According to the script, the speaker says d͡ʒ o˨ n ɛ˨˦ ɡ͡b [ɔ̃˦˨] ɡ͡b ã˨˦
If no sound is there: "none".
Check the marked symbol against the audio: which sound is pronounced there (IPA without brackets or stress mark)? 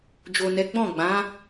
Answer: ɔ̃˦˨